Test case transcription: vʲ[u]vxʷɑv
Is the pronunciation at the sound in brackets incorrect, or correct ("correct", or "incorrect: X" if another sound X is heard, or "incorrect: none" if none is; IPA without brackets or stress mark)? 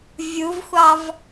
correct